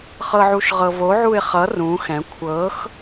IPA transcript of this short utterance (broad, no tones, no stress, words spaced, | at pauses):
χɤʕuʃʁɤvo ʕuɪ̯χʌ rũ xɛ̃ kʷʰɤx